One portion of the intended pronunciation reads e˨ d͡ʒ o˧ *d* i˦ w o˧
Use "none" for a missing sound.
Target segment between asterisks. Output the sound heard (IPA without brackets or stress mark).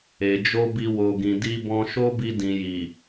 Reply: b